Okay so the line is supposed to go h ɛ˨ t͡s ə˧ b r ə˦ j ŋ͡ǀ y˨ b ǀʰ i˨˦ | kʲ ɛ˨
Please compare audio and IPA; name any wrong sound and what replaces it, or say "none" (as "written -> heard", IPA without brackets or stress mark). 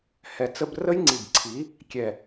y˨ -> i˨